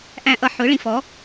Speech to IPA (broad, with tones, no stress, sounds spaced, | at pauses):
ʔ æ̃˨ ʔ ʌ˨ ħ ʊ˩˥ ɭ ĩ˨ f ɔ˩˥